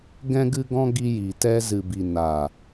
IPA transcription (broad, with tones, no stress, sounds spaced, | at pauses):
ɡ ɛ̃˧ ɡ ɨ˧ ɡ ɔ̃˧ ɡ i˧ j i˨ t ɛ˧ z ɨ˨ b i˨ n aː˨